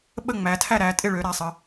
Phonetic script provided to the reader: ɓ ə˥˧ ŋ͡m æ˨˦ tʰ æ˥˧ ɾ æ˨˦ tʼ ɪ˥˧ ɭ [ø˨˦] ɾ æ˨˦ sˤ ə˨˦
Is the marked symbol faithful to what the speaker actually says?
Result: yes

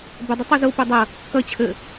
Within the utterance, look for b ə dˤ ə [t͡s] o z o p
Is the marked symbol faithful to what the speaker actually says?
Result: no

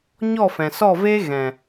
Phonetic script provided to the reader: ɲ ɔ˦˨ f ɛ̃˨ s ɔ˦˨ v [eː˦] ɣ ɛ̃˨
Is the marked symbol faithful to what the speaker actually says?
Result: yes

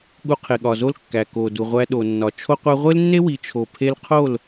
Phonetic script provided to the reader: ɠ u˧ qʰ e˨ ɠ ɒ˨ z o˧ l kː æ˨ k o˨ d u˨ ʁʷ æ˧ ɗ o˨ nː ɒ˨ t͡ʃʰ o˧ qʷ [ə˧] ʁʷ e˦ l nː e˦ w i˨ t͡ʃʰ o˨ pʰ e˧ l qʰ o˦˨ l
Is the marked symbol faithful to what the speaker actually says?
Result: no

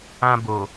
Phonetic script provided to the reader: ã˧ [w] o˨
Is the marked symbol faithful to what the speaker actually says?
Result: no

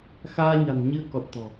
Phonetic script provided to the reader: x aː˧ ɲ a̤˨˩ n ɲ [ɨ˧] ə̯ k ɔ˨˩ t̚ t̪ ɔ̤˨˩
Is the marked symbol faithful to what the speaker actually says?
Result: yes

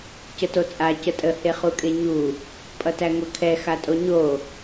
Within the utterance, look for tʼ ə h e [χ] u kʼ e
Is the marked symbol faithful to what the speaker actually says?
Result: yes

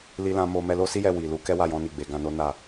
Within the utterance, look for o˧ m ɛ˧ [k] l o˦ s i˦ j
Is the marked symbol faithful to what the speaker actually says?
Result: no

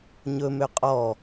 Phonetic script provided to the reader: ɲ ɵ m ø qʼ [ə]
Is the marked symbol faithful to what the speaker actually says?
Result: no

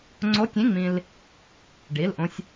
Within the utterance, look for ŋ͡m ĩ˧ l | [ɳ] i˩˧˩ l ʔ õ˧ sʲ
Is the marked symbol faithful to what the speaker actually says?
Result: no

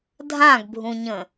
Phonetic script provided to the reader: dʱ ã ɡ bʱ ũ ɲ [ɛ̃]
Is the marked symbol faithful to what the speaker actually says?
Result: no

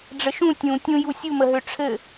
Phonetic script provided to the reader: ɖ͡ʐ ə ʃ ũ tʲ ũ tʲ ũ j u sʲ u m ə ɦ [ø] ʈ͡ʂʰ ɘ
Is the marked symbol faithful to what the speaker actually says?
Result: yes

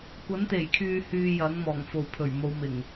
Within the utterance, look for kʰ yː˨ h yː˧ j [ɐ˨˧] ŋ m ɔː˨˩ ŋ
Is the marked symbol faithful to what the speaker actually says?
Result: no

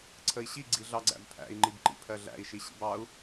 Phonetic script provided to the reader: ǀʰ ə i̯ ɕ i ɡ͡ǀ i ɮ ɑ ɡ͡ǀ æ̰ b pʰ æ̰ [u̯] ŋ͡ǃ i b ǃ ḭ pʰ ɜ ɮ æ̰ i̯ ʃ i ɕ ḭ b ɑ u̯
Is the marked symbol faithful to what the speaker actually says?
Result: no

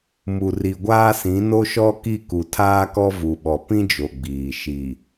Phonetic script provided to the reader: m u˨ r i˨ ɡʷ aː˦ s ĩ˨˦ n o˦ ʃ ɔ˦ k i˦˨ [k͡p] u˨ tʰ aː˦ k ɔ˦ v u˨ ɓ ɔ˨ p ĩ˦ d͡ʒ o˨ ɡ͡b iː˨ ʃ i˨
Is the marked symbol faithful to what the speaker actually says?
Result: no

